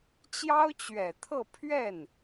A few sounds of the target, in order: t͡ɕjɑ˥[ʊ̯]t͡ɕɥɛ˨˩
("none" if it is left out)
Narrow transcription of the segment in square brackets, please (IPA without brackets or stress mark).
ʊ̯